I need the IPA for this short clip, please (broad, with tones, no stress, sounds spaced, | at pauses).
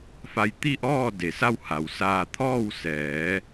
f a˧ j t̪ i˥˨ ʔ ɔː˥˨ d e˩ s a˥˨ w h a˩ w s aː˧ t̪ʰ ɔː˥˨ w s ɛː˩˧